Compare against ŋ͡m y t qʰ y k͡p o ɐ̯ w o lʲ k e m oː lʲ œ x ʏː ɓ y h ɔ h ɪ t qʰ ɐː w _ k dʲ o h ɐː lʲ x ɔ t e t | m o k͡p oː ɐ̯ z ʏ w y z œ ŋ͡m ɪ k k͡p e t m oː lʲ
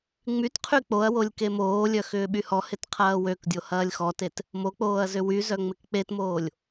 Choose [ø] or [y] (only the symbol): ø